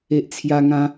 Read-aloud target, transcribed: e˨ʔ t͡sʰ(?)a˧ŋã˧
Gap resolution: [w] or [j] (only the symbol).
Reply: j